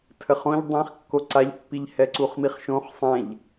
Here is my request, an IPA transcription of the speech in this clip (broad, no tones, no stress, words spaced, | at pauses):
tʰəχõʎ dˤĩχ kːoǀaʎpːiʎ hɛǀuχmiχʃõχ sˤɛ̃ʎ